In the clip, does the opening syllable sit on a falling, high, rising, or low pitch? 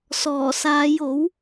low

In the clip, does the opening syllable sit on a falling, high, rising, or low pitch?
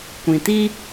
low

